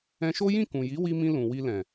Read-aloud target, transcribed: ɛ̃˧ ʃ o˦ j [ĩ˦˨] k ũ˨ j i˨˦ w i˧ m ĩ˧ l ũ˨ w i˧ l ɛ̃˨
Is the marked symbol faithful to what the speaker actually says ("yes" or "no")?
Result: yes